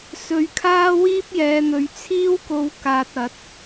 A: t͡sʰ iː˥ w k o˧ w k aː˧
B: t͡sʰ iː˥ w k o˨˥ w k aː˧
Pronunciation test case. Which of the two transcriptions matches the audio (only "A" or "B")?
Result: A